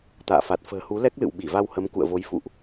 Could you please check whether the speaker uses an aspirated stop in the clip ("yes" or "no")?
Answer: no